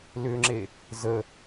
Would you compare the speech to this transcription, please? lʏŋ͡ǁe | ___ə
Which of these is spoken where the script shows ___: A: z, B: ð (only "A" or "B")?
A